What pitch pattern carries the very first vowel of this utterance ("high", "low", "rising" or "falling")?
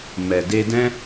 low